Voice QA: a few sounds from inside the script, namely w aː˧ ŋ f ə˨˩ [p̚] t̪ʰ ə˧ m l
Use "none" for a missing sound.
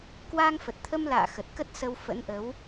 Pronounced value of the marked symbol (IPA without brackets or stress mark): t̚